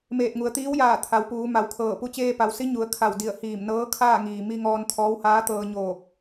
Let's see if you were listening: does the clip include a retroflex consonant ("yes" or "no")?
no